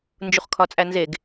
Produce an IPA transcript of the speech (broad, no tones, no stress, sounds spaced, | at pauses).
n d͡ʒ u χ kʰ ɒ t͡sʼ æ n z e ɡ